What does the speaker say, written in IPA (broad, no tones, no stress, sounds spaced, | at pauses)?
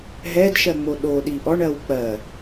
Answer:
ɦ ɛ d ʃ ɜ ŋ͡m o ɗ o ɗ i ʔ ɔ ɳ ɜ w k͡p ɜ